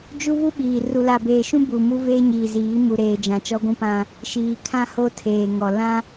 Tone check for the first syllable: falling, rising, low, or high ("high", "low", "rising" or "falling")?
high